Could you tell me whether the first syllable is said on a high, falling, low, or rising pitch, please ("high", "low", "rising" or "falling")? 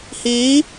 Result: rising